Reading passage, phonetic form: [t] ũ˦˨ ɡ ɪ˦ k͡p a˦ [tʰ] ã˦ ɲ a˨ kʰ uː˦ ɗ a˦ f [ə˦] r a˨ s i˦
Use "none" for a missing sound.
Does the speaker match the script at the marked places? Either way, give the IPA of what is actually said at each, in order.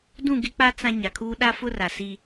d, t͡s, ʊ˦

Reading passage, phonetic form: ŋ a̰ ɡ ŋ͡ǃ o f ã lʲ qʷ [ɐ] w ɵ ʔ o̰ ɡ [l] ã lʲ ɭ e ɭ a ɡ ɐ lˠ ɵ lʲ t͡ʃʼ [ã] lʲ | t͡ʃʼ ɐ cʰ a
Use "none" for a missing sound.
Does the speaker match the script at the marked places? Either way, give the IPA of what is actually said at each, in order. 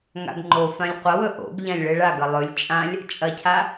ɐ, ʎ, ã

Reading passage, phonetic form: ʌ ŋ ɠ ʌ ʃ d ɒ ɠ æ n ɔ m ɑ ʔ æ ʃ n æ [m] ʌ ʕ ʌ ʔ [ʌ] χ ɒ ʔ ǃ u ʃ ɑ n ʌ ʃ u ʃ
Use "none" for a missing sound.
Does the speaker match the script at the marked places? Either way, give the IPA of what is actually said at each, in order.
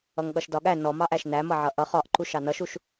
m, ʌ

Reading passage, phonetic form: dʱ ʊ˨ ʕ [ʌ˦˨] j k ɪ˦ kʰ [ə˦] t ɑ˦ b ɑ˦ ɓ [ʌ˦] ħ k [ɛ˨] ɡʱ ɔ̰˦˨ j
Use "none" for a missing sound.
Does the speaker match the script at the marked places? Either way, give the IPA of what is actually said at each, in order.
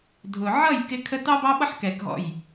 ʌ˦˨, ə˦, ʌ˦, ɛ˨

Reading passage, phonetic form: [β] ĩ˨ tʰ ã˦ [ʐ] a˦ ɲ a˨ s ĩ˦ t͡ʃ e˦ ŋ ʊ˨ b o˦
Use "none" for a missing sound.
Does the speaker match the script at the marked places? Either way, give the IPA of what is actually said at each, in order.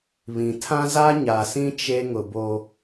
β, z

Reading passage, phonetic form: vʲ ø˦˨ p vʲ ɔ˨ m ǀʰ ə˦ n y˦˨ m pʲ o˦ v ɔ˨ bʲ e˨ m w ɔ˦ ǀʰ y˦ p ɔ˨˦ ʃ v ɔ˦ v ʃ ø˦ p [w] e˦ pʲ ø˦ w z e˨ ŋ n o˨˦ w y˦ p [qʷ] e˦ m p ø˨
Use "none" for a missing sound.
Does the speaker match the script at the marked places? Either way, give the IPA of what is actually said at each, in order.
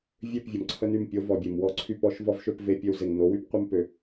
v, qʷ

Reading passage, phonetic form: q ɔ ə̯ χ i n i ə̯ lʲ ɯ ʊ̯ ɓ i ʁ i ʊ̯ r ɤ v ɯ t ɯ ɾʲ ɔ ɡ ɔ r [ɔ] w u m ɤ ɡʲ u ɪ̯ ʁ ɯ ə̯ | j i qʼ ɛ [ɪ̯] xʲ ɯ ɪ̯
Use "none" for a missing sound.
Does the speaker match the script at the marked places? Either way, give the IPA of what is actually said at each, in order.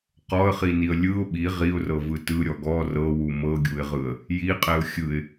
ɤ, ʊ̯

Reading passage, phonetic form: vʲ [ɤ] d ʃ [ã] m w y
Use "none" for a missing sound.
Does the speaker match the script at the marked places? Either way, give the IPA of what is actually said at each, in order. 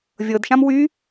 ɤ, ã

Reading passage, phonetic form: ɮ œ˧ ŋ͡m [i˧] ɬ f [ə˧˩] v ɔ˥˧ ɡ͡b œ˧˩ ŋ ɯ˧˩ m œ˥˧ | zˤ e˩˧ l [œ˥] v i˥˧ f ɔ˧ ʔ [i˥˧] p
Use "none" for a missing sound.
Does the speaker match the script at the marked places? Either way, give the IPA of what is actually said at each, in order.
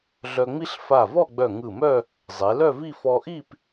i˥, a˧˩, œ˥˧, i˥˧

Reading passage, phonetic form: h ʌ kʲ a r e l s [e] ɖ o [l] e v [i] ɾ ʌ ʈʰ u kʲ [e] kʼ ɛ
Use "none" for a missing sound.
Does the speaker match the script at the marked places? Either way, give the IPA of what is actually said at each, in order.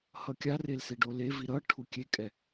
e, l, i, e

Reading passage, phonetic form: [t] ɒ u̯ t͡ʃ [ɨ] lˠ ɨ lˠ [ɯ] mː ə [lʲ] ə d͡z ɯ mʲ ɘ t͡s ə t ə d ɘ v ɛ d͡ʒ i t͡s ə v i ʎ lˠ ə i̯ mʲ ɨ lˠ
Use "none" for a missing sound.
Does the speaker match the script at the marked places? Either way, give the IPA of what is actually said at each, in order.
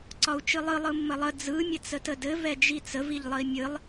ǀ, ɨ, ɯ, lˠ

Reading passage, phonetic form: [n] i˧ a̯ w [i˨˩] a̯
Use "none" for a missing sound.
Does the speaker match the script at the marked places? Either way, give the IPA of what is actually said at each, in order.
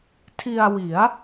tʰ, i˩˦

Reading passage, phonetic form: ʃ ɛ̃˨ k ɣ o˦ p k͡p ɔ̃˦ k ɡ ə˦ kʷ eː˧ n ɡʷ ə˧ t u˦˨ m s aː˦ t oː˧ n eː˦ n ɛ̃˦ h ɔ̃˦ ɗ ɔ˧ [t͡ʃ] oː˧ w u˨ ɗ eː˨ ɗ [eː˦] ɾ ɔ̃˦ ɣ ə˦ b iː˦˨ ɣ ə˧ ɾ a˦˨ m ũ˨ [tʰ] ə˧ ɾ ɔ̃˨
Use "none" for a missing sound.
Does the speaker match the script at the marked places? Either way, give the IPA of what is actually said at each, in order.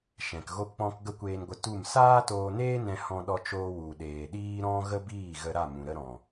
t͡ʃ, iː˦, ɾ

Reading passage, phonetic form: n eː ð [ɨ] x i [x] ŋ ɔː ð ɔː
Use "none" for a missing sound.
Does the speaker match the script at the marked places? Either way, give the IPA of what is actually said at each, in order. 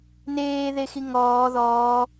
e, none

